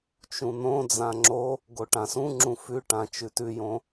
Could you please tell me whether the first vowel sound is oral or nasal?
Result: nasal